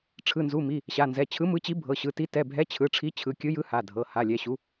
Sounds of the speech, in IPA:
ʈ͡ʂʰɯ˩˧˩nzu˩˧˩mi˩˧˩ | ɕa˩˧˩nzɛ˩˧˩ t͡ɕʰɯ˨˥mɯ˨˥t͡ɕi˨˥ bʱɤ˩˧˩ɕɯ˩˧˩ti˨˥ tɛ˩˧˩bʱɛ˨˥ t͡ɕʰɯ˩˧˩ʈ͡ʂʰi˨˥ t͡ɕʰɯ˩˧˩kʲɯ˨˥jɯ˨˥ ha˩˧˩dʱɤ˩˧˩ ha˩˧˩lʲɛ˩˧˩ɕu˨˥

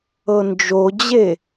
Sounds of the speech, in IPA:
ɤnd͡ʒod͡ʑe

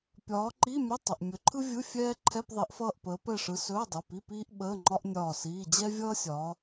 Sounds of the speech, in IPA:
pʲɒː˨˦ǃi˧˥˧ mʲə˧˥˧ tˤə˩˧˩ʔmʲɵ˨˦ǃʰɯ˥vʲɯ˧˥˧ fʲɛː˥ ǃʰɛ˧˥˧pðˤi˨˦ʔfʌː˦˨ʔpəː˨˦ pɛ˦˨ʂɯ˨˦ sɵː˧˥˧dˤɯ˩˧˩pi˧˥˧ piː˥ʔɓəː˧˥˧ŋ͡ǃɒ˥ʔ nʲɒː˦˨siː˧˥˧ d͡ʑɛ˥vʲʌː˥sʲɒː˨˦

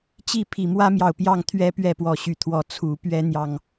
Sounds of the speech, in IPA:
t͡ɕi˥˨ pʰi˨˩ mwä˦mjɑ˨˩ʊ̯ pjɑ˥˨ŋ t̪ʰɥɛ˦ pɥɛ˥˨pwɔ˨˦ɕy˨˩t̪ʰwɔ˨˦ t͡sʰu˨˦pɥɛ˦ n̪jɑ˥˨ŋ

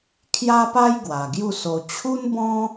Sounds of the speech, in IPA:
kʰja˦pa˦j ɡwa˨˩ɡju˥˧so˧ t͡ɕʰu˦nbɔ̃˦

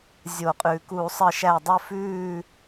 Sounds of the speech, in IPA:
zʲo˧˩˧qʼʉː˩˧ ku˧˩˧sˤə˧˩ʃæ˧˩dˤə˥˨ fʉː˥˨

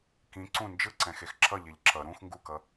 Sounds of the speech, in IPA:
kĩ ǀũ nd͡ʒɯǀɛ̃xex ǁʌʎeʎ ǁʌ ɾũx ŋɡukʌ

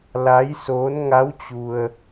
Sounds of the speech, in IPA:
la˧˥jsoː˧˥n ŋa˧˥w t͡ɕu˧ə̯

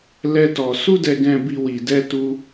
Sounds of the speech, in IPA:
lɛ˦tɔ˧ su˦dɛ˧ɡɛ̃˧bi˧ wi˧ dɛ˦tu˦

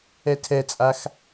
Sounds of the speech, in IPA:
ɛtʰɛt͡sʼax

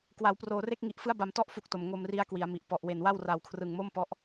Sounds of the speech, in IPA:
kwa˩˦wproː˨˩re˥˩k̚ŋi˨˩ʔ fɯ˦˥a̯ba˩˦mtɔ˦˥ʔ fu˦˥k̚to˨˩m ŋo˧mri˦˥a̯ kwi˩˦a̯mi˨˩ʔ pɔ˨˩ʔwe˨˩nwa˥˩w ra˨˩wkʰrɯ˨˩ŋ mo˥˩mpɔ˦˥ʔ

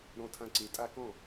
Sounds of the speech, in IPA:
ɾɔ̃˧tʰã˧ǀe˩˥ tʼa˧kɔ̃˥˩

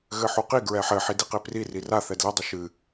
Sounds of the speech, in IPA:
ɣɘħuqi ɡɹɛħɘ ħidiqepri rira θɛdlɘ dˤɨʃɨ

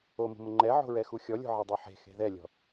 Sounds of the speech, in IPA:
omṳmʊ ŋ͡ǃɛʕo̤ɹɛ xuxʲɔlʲo̤ ʕɛdˤuħe̤ xe̤ðɛlʲɔ̤

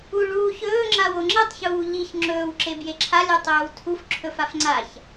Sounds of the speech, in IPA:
u ɭuːç ɵːŋ͡ǁaw oŋ͡ǁetˤçuː ʎiç ŋ͡ǁɵːwǁe bjeǁʰa lʲɵtˤɵːwtʰuf ǁʰɵfafŋ͡ǀaç

